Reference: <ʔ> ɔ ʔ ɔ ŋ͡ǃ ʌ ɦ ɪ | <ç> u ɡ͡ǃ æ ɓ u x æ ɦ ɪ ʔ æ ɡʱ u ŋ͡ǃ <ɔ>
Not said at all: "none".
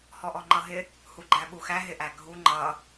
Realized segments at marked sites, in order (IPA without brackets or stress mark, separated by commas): h, h, ʌ